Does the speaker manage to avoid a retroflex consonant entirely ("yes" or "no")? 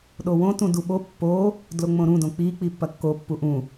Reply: yes